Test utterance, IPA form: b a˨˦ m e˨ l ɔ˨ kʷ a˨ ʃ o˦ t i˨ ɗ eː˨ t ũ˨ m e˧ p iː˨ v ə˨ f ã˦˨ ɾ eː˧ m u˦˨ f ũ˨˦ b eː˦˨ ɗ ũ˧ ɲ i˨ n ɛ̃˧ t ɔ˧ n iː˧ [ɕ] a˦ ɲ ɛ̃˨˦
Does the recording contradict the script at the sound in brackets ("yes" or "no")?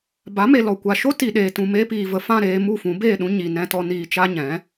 yes